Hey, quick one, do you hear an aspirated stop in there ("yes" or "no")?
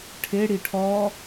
yes